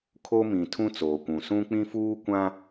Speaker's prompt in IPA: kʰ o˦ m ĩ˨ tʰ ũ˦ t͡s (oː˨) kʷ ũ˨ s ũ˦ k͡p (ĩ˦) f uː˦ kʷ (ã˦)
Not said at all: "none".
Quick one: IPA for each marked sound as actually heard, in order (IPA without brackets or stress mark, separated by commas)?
oː˨, ĩ˦, ã˦